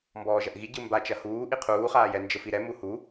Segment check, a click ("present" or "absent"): absent